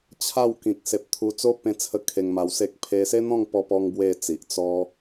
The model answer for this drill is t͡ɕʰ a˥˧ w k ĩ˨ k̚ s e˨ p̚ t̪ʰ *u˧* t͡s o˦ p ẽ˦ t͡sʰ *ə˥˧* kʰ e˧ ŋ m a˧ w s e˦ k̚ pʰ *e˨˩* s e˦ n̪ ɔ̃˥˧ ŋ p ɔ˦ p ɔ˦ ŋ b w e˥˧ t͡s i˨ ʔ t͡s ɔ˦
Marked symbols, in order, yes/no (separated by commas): yes, yes, no